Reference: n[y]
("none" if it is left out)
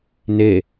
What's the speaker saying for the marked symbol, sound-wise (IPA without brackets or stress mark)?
e